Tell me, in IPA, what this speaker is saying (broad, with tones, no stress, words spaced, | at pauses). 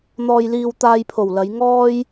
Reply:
n̪ɔː˧jliː˧w t̪aː˧jpʰo˨˩w lɐ˨˧jŋɔː˥j